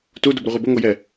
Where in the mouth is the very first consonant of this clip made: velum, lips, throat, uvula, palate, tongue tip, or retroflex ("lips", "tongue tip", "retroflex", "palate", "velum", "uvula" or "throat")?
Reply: tongue tip